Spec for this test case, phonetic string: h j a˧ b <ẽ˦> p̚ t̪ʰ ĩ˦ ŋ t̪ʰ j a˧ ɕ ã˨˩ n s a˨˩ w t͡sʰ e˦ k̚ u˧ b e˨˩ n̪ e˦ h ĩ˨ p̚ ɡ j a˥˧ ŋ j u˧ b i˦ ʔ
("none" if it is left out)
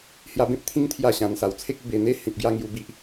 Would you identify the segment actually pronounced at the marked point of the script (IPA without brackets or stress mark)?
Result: ẽ˦